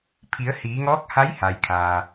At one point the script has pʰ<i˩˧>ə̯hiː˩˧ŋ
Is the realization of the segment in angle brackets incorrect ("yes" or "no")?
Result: no